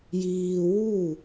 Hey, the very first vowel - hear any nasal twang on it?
no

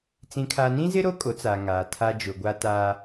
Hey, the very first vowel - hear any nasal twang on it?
yes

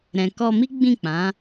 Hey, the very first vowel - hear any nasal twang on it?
yes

